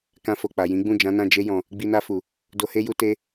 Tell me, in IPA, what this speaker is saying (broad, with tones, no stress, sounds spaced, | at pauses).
k ã˧ f o˨ k͡p a˨ j ĩ˨˦ ɡ͡b ũ˦˨ d͡ʒ ã˨˦ n ã˦˨ d͡ʒ e˧ j ɔ̃˨ | ɡ͡b i˧ n a˧ f u˨ | d o˧ h e˦ j u˧ t e˧